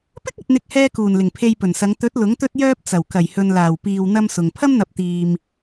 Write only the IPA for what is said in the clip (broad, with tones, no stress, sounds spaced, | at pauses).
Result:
p ɪ˥ k̚ ɐ˨ t̚ n̪ ɪ˨ k̚ h ɛː˥ k uː˨˩ n l ɪ˨˩ ŋ pʰ e˧ j p ɵ˨˩ n s ɐ˨˧ ŋ t̪ ɵ˨˥ t̚ l ʊ˨˥ ŋ t̪ ɵ˥ t̚ j œː˥ p̚ t͡s ɐ˨˩ w k ɐ˨˩ j h ɵ˨ n l aː˨˩ w p iː˧ w n̪ ɐ˥ m s ʊ˨ ŋ pʰ ɐ˥ m n̪ ɐ˨˥ p̚ t̪ iː˨ m